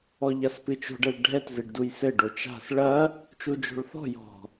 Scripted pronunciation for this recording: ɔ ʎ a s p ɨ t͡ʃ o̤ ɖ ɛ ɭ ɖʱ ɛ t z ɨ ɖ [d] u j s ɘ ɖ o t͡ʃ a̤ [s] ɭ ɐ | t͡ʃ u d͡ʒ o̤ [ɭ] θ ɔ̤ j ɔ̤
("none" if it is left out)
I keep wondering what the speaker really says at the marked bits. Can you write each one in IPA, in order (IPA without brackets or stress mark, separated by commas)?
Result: d, s, ɭ